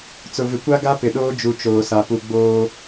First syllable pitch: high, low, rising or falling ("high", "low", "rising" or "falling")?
low